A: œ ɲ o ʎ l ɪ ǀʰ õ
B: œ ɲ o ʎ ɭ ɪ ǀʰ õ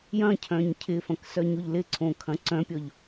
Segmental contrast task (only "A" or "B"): A